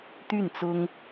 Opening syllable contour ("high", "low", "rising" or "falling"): falling